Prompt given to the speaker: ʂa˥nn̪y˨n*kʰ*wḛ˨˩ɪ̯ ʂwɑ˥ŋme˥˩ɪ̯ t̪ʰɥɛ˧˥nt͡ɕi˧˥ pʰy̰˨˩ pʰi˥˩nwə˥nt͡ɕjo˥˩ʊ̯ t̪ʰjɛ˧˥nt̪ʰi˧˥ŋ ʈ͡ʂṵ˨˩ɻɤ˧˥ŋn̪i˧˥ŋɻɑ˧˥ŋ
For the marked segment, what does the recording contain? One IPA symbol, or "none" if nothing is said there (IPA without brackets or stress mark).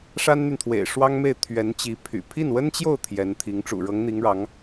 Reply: t̪ʰ